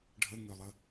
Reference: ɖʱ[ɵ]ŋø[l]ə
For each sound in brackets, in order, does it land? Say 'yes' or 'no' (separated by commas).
no, no